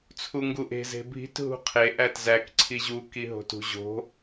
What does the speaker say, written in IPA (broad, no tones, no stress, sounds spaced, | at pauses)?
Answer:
t͡sʰ u ŋ ɡ u ʔ e̤ z e̤ bʱ i̤ t ɦ ṳ qʰ e ʔ æ t z æ k ǀʰ i ʑ u k i ɦ o̤ t ṳ ʑ o̤